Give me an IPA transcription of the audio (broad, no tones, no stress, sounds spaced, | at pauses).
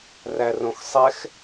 r æ r õ x sˤ ɛ x